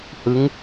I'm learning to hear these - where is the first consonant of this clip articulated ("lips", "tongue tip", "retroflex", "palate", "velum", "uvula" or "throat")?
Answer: throat